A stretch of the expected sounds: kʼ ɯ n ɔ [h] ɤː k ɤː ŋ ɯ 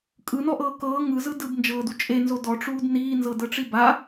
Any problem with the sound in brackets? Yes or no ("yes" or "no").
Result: yes